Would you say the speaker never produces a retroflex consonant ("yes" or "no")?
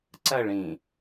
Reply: no